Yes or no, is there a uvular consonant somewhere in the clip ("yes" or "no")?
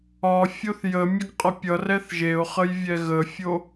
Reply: yes